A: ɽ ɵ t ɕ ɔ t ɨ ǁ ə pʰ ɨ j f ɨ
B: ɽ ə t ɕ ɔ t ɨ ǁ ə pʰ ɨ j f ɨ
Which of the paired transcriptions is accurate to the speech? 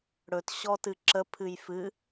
A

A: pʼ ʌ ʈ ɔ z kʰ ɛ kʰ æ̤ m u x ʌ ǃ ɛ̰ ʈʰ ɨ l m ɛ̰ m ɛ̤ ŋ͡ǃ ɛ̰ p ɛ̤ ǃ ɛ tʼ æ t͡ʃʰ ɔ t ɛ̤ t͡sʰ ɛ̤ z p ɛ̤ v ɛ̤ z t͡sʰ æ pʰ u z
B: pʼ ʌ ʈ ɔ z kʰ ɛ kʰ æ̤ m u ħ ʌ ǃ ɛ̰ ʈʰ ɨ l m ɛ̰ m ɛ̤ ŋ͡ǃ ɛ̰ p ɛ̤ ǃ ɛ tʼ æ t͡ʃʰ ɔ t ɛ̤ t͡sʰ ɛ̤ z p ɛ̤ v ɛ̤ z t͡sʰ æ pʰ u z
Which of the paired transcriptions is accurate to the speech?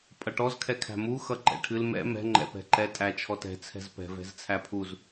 A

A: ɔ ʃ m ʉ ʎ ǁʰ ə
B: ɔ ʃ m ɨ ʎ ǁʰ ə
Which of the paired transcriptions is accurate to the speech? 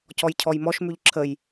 A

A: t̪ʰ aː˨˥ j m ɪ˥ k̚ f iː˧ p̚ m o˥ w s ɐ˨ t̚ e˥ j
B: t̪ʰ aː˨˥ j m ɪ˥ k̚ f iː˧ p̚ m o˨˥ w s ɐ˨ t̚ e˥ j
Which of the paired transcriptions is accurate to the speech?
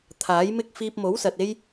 B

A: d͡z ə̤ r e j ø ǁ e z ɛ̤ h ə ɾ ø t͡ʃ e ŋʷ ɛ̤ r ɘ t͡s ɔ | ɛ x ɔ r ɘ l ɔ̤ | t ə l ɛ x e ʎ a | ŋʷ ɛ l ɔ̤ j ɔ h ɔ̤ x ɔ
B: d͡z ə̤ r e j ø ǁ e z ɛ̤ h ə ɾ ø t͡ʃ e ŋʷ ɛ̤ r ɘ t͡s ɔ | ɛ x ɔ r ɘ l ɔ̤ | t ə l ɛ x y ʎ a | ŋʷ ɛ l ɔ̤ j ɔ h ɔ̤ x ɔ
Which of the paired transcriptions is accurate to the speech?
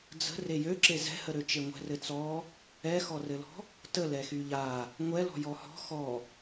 B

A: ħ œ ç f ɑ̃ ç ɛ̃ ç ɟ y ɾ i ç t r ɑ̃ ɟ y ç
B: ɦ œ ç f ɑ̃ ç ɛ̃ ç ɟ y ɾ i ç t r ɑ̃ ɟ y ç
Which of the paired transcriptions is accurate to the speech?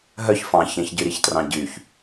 B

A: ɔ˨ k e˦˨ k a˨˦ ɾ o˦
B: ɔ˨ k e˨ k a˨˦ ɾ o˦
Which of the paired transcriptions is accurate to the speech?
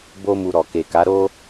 B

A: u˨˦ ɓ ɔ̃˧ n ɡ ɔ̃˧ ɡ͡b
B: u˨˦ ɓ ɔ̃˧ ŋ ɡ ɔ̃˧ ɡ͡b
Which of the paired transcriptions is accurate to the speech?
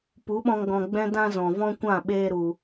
B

